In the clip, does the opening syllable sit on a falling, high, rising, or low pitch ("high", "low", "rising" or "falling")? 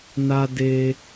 high